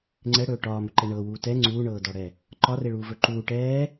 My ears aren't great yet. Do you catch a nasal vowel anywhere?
no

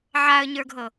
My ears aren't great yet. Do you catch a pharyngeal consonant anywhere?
yes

